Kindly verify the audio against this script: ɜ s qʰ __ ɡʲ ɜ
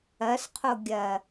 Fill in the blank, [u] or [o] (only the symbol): o